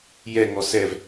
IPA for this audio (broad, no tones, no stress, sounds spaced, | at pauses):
j ɛ ŋ ɔ s ɛ v